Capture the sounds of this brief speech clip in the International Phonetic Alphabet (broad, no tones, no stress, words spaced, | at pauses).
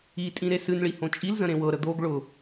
itʼĩ ɾesɨnɭi hõt͡ʃʼilzə̃ ɾẽwɤɾə d̪oɡ ɭʊ